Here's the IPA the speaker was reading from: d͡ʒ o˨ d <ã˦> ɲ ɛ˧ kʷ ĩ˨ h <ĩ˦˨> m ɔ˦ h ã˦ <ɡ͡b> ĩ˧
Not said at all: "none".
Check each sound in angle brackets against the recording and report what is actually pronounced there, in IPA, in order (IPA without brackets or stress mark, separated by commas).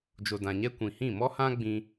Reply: ã˨, ĩ˦˨, ɡ͡b